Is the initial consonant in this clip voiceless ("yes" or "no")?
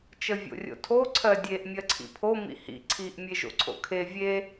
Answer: yes